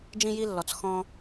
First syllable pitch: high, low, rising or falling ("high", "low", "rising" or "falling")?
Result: high